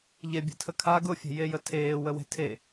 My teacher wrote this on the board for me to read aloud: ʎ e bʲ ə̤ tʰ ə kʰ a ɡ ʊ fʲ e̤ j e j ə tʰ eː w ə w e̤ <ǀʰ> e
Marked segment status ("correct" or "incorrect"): incorrect